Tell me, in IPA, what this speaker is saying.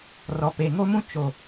r ɔ˨ p e˨ ŋ o˦ m ũ˦ t͡ʃ o˨

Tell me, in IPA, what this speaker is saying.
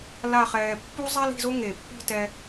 l a˥˧ χ ɛː˧ pː u˥ zˤ a˥ l i̤˥˧ z o˥ ŋ e˧˩ pː i̤˥˧ t ɛ˧

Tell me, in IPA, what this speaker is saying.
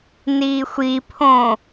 n iː xʷ i pʰ õ

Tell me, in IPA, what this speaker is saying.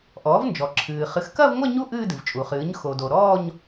ʔ ɔː˩˥ v n d͡ʒ ɔ˩ ǁʰ ɨː˩ χ ɨ˩˥ x k ɐ˥˧ v ŋʷ ɐ˥˧ ɲ u˥˧ ʔ ɨː˥˧ d ɨ˩ v t͡ʃʼ u˩ χ ɨː˩˥ ɲ x o˩ d o˩ ɾ ɔː˥˧ ɲ

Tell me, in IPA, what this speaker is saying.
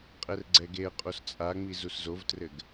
qʼ ɛ r ɡ͡ǀ ɛ ɡ e ə̯ qʼ o s t͡sʼ a ŋ͡m i z u s z o v t r ɘ ɡ

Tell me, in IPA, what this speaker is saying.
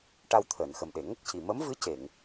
ʈ a˧ w t̪ʰ əː˨˩˨ n x ə˨˩ m ɗ e˨˩˨ ŋ ə˦˥ k̚ c i˨˩ m ə˧˥ m v ɨ˧˥ c e˨˩˨ ŋ

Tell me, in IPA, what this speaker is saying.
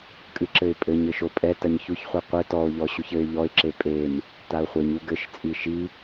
kʼ ɨ ǁ ɘ ɪ̯ pʼ ɘ ɲ ɘ ʃ o pʼ ɛ t ɐ ɲ ç u ç χʷ i qʷ ɘ t ɔ ʊ̯ ʎ ɔ ɕ u ç ɘ ɪ̯ ʎ ɔ ɪ̯ ǁ e pʼ e m | t a ʊ̯ χʷ e ɲ u ɡ ɘ ʃ t͡sʼ i ʃ i

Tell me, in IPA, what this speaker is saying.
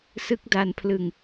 s ɯ˦˥ k̚ d a˧ n pʰ l ɯ˧ ŋ

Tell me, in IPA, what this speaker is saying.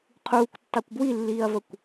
qʰ uː kʷ tː ɑ kʷ b w i lː iː ɐ̯ v ə kʷ

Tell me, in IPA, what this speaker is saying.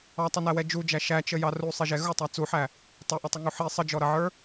ɑ tˤ ʊ n æ w ɛ d͡ʒ u d͡ʒ æ ʃ æ t͡ʃ ə j ɑ r u sˤ i ʒ ɛ ɣ ʊ tˤ æ t͡s u ħ æ | tˤ ʌ ʔ ʌ tˤ ɪ ŋ u ħ i sˤ ə d͡ʒ ɔ ɾ ʌ ʕ ə˞

